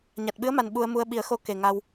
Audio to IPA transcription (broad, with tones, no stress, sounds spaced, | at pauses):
ɲ a˨˩ t̚ ɓ ɨ˧˥ ə̯ m a˨˩ n ɓ u˧ ə̯ m u˧ ə̯ ɓ i˨˩˦ ə̯ x o˧ k e˨˩ ŋ a˧ w